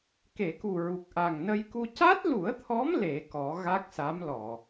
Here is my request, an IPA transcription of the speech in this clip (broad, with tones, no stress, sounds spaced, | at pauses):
k e˨˩˨ k u˨˩ ɹ u˨˩ k̚ ʔ a˨˩ ŋ n ə˧ j k u˧ c a˦˥ t̚ l u˨˩˦ ə̯ t̪ʰ ɔ˧˥ m l e˨˩˦ k ɔ˨˩˦ ɣ a˦˥ k̚ s a˧˥ m l ɔ˨˩˨